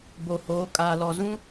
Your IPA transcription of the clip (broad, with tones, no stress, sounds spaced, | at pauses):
b o˨ h oː˨˦ kʼ aː˨ l ɔ˨ z ũ˦